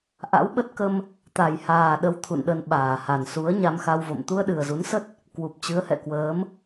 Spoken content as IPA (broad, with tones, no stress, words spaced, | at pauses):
ʔa̰˧˥wɓə˦˥t̚kə˧m | t̪a˨˩jhaː˨˩ɗə˨˦w t̪ʰṵ˧˨nɗə˧nɓaː˧˩ha˨˩n su˨˦ə̯ ɲa˧mxa˧wvo̰˧˨m t̪u˧ə̯ɗɨ˨˩ə̯zu˨˦nsə˦˥t̚ | kwu˨˩p̚ t͡ɕɨ˨˦ə̯hɛ̰˧˨kwəː˨˦m